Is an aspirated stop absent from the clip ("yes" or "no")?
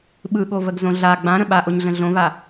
yes